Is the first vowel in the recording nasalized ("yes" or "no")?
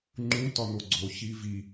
yes